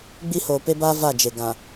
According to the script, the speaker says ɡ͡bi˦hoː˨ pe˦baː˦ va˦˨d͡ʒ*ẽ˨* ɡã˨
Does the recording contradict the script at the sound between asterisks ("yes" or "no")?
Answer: yes